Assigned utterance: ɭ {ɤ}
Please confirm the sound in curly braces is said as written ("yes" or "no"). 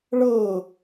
yes